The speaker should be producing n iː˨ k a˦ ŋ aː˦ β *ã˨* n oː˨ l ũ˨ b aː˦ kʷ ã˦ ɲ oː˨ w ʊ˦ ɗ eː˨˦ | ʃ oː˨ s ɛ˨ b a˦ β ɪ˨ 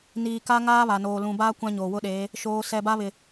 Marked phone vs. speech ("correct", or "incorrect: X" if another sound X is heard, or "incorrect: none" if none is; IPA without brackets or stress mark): incorrect: a˨